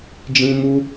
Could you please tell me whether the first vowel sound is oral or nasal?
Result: nasal